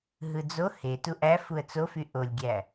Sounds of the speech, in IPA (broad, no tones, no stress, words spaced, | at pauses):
ɦɯd͡zo he tuʔæfuə̯ t͡sofy ʔolʲɡʲæ